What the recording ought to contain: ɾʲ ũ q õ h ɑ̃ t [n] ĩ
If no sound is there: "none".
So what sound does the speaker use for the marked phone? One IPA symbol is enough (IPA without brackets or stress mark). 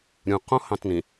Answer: n